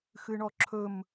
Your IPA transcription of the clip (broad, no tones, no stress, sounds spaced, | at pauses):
x ɨ ɳ ɔ ǁʰ ɵ m